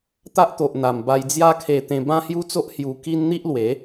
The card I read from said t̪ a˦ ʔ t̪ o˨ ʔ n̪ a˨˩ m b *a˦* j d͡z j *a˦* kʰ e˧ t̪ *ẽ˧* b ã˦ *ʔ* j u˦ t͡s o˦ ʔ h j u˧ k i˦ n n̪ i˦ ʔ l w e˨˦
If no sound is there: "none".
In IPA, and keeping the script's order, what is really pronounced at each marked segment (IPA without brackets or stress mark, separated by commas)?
a˧, a˦, ẽ˧, h